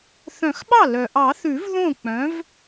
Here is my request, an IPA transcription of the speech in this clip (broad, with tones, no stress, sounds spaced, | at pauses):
θ œ̃˨˩˦ x ɓ ɑ˥˩ l œ˩ ʔ ɑ˨˩˦ θ ʉ˨˩˦ v ð õ˥˩ k͡p œ̃˩˥ v